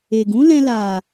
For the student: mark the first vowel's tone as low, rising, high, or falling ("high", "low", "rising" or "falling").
low